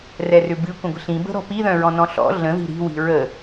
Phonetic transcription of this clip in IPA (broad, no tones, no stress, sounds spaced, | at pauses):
r ɛ r ʏ b ɨ kʷ ə̃ ɡʷ ə̤ ɬ ĩ b ə̤ ɾ ɔ̤ p i ð œ̃ ɹ ɔ̃ n ɔ̃ ɬ ɔ̰ ɮ ə̃ ð i̤ ɾ i̤ w i̤ ɹ ə